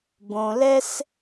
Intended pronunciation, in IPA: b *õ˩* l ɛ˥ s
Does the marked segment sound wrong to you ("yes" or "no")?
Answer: no